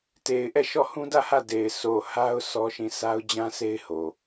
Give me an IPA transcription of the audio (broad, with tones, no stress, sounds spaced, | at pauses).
t e˨ ɪ̯ ʔ ɛ˦˨ ʃ ɔ˦˨ h ũ˦ d ä˦˨ h ä˦˨ d e˨ ɪ̯ sʰ o˨ h a˦ ʊ̯ s ɔ˦ ʃ ĩ˦˨ sʰ a˦ ʊ̯ d͡ʑ ã˦ s e˦ ɪ̯ h o˨